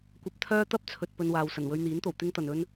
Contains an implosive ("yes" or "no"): no